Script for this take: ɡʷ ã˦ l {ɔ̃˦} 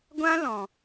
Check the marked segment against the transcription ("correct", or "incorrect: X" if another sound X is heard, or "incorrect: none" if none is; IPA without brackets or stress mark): incorrect: ɔ̃˨